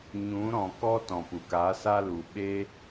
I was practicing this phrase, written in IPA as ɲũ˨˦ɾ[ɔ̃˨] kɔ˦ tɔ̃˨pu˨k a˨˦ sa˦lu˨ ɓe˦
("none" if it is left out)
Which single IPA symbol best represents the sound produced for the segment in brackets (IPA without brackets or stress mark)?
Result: ɔ̃˨